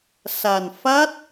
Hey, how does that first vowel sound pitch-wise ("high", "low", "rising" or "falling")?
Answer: low